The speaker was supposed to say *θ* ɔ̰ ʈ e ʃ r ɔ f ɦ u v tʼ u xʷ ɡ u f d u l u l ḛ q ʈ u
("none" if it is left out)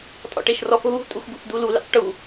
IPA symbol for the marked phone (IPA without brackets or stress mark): tʼ